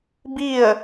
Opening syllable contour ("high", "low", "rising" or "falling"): falling